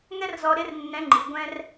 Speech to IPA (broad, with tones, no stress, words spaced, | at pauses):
ŋɛ˥rzɔ˧ ɾɪ˧˥r nːɛ̃˧˥ŋ͡ǃi˩˧ ɡʷɛ̃˥r